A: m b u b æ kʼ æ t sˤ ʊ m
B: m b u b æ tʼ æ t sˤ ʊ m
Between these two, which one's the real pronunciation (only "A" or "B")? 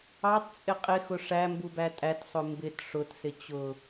B